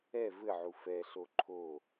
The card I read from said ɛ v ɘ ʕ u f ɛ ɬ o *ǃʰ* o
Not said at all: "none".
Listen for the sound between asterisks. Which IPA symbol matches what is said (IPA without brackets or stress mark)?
ǃʰ